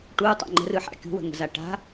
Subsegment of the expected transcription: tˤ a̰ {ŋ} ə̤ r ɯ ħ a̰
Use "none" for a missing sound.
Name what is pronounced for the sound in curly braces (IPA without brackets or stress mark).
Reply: ŋ͡ǃ